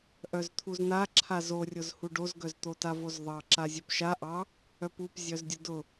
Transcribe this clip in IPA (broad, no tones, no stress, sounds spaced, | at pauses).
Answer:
ʔ œ z t̪ʰ u z n̪ a ǁʰ a z o rʲ ʊ z h u ɖ o z ɡ œ z t̪ o t a v o z ðˤ ɑ ǁ a zʲ œ p ʃ a ʔ ɑ | œ p u p zʲ œ z dʲ ʊ d ʊ